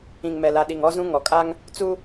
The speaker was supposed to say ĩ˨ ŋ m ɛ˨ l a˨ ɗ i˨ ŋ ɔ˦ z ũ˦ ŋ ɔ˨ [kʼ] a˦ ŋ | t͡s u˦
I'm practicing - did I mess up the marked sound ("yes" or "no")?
no